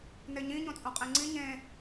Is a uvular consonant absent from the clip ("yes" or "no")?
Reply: no